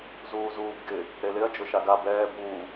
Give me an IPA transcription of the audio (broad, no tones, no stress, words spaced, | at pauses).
zuːzuːbɡɪ | ɾelɪɐ̯ d͡ʒʊʃaɡa bɛː buː